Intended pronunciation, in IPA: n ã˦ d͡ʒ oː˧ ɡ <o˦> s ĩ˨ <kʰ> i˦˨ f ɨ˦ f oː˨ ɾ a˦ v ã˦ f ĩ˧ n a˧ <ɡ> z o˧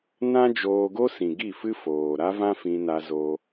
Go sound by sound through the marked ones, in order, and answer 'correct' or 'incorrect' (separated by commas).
correct, incorrect, incorrect